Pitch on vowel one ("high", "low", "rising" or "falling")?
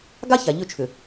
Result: high